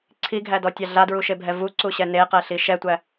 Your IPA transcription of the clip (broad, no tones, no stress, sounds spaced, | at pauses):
ǀʰ i ɡʱ æ d ɔ tʲ a ɮ a d ɹ u ʃ e bʱ ɛ v u ǀ u ɕ ɛ n e q ɛ ɬ i ʃ ɛ tʷ æ